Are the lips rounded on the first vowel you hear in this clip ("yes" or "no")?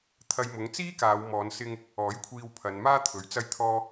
no